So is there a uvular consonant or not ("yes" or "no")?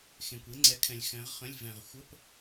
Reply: yes